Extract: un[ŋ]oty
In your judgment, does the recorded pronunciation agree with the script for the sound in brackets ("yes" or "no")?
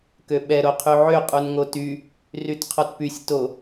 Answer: yes